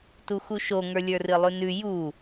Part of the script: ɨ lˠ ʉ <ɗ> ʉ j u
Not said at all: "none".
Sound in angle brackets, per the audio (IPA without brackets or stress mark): n